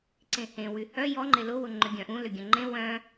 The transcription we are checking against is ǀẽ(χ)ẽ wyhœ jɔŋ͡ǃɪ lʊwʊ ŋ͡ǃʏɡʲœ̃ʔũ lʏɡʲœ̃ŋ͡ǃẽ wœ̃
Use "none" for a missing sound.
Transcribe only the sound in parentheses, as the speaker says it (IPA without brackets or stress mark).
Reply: h